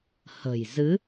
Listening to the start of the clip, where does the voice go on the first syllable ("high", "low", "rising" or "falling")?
low